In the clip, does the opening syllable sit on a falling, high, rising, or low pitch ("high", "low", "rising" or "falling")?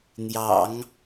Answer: low